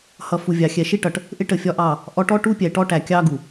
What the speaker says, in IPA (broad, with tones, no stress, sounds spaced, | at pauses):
h ʌ˨ f u˨ vʲ ɑ˨ xʲ ɛ˨ ʃ i˦ ʈ ʌ˨ ʈ | ʔ ɪ˦ ʈ ə˨ fʲ ɒ˦ ʔ ɑ˦˨ | ʔ ɔ˨˦ ʈ ɔ˦ ʈ u˦ pʲ ɛ˨ ʈ ɔ˦ ʈ æ˨ kʲ ɑ˦ ɡ u˨